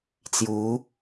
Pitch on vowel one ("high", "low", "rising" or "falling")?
rising